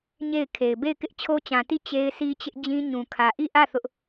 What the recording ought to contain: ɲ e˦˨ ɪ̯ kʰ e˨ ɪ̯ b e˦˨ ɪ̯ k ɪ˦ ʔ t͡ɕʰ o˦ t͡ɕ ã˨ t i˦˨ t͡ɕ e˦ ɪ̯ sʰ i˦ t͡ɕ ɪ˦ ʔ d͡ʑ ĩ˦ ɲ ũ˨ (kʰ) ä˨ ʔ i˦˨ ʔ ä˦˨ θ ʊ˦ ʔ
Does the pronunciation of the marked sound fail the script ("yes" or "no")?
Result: no